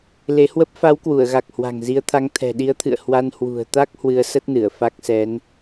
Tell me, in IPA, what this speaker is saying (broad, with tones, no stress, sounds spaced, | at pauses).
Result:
l e˨˦ h w ə˦˥ p̚ f a˨˦ w k w u˧˩ ə̯ ɣ a˨˩ k̚ h w a̤˨˩ ŋ z i˨˦ ə̯ t̪ʰ a˨˦ ŋ t̪ʰ ɛ̤˨˩ ɗ i˨˦ ə̯ t̪ʰ ɨ̰˧˨ ə̯ h w a˧ n h w ṳ˨˩ ə̯ t̪ a˦˥ k̚ h w ɨ˧ ə̯ s ə˦˥ t̚ n ɨ˧˩ ə̯ f a˦˥ k̚ s ɛ˨˦ n